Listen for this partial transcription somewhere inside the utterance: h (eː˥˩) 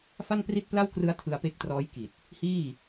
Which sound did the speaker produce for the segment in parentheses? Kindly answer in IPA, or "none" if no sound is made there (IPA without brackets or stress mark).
iː˥˩